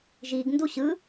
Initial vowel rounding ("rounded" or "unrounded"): unrounded